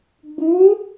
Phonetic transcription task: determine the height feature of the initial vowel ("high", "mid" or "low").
high